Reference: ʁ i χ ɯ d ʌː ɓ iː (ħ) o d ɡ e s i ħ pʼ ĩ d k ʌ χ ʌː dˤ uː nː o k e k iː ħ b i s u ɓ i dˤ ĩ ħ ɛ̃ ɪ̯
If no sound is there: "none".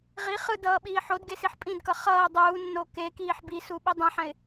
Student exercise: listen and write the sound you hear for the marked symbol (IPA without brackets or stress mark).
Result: ħ